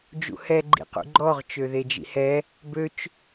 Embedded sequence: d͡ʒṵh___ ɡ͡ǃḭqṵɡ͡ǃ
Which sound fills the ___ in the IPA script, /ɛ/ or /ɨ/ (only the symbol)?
ɛ